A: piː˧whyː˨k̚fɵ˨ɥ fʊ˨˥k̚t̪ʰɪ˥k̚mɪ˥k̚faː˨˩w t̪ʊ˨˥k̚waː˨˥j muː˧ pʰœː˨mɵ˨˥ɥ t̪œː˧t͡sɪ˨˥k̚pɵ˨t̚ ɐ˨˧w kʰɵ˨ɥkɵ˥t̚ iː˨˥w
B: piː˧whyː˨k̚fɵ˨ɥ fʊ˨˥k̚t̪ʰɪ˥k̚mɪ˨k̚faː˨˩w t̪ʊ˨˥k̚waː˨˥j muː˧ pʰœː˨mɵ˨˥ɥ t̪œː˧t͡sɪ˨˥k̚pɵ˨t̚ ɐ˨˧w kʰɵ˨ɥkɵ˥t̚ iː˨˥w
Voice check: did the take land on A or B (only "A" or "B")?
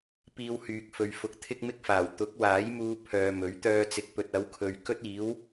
A